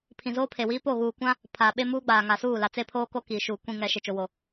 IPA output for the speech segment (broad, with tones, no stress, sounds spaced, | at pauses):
pʰ ĩ˨ z oː˦ pʰ e˨ w iː˦ p o˦˨ ɣ uː˨ kʷ ã˦ | pʰ aː˨ ɓ e˦ m uː˦ ɡ͡b aː˨ ŋ a˨ s uː˦˨ l a˨ t͡s e˦ pʰ oː˦ k o˦ k iː˨ ʃ uː˨ kʷ ĩ˨ ŋ ɛ˨ ʃ e˨ t͡ʃ o˨ w o˨